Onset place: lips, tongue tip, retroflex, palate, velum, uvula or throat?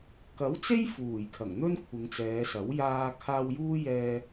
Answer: velum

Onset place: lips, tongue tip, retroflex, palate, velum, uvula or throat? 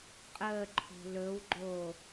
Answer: uvula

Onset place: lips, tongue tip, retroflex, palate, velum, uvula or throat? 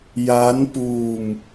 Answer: palate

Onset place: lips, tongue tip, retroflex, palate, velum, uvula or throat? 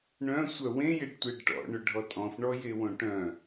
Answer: retroflex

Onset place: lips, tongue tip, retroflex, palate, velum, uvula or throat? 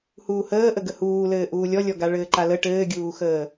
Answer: throat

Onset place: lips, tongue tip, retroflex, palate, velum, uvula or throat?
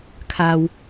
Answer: velum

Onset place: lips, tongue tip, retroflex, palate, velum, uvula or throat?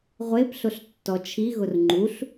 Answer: uvula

